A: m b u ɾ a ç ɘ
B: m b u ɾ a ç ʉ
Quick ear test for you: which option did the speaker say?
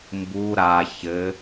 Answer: A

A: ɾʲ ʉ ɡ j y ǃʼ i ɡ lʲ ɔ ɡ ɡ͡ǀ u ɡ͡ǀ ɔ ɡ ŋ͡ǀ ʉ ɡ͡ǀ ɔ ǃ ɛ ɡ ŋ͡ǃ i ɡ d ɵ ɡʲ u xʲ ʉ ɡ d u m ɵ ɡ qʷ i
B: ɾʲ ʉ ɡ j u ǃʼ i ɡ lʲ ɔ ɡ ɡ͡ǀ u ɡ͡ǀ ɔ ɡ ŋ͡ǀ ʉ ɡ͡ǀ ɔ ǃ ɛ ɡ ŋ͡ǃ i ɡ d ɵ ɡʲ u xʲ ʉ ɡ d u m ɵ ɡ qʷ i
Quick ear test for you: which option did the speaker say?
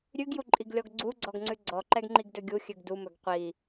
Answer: B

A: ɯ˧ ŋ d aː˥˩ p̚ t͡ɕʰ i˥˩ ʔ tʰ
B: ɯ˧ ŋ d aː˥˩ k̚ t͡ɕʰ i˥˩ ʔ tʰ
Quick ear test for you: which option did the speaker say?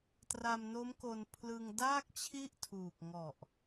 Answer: B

